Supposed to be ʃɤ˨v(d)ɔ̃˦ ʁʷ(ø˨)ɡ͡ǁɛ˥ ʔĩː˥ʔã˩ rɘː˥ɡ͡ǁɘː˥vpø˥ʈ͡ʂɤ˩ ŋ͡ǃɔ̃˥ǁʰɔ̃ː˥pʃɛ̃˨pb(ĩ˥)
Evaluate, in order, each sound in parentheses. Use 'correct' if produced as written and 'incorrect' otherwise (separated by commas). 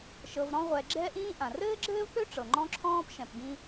incorrect, incorrect, incorrect